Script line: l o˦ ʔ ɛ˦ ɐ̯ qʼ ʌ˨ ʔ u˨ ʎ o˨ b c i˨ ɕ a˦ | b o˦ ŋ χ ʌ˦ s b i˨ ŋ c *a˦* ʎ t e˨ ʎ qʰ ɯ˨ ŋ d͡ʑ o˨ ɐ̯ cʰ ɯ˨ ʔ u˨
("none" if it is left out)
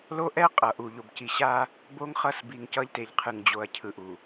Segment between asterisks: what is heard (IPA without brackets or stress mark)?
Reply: ʌ˦